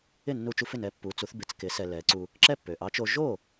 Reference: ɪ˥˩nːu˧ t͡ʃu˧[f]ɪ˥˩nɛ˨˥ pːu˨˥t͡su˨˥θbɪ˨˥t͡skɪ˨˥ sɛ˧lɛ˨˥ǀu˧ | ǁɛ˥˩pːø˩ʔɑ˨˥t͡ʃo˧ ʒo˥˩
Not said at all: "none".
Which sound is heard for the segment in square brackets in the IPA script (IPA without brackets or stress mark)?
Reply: f